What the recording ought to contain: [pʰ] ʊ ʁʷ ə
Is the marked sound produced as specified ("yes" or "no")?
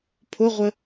yes